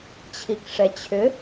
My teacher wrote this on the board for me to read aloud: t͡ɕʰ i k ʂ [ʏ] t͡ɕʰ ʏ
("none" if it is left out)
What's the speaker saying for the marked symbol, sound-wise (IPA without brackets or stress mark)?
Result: ɛ